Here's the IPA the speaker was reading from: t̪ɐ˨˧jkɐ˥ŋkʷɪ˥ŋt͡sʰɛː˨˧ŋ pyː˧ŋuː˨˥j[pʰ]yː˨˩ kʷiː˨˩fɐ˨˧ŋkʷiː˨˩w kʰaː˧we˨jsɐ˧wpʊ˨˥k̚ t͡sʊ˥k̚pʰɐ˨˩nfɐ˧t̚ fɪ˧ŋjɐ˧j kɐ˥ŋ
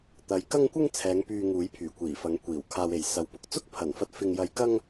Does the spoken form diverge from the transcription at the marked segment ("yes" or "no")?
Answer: no